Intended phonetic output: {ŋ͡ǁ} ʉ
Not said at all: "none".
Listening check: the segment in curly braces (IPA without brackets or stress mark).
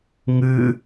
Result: ŋ